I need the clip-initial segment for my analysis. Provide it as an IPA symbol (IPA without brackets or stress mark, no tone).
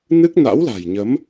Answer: n